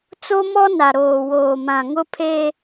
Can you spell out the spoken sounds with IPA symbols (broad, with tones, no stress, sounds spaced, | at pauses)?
t͡s o˦ m ɔ˦ n a˨ ɾ oː˨ w oː˨ m ã˨ ŋ ʊ˦ pʰ e˦